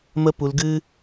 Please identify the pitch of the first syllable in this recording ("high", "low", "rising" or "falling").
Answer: high